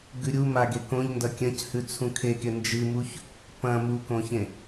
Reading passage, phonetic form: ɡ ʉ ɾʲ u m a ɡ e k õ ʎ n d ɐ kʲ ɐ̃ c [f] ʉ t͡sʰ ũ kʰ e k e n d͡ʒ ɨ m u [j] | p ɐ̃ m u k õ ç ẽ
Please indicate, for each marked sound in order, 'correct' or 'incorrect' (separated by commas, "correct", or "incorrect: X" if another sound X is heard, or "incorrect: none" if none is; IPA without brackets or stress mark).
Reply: incorrect: h, incorrect: ç